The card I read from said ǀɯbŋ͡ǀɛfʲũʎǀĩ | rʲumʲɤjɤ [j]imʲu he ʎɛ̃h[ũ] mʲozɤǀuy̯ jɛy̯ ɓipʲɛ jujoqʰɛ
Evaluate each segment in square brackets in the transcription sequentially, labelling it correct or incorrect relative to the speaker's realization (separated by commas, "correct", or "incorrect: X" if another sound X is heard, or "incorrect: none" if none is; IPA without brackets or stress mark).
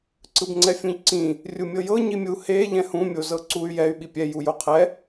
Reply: incorrect: ɲ, correct